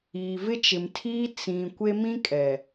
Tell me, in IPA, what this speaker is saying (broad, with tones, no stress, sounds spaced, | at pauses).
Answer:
iː˨ v ɪ˦ t͡ʃ ɪ˨ m tʰ iː˦ t͡s ĩ˨ kʷ e˦ m ĩ˦ kʼ ɛ˨